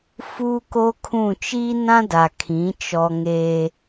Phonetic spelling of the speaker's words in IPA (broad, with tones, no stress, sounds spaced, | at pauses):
f uː˦ k oː˦ kʰ ũ˦˨ t͡ʃ iː˦ n ã˦ d a˨ kʰ ĩ˨˦ t͡ʃ ɔ˦ ŋ e˦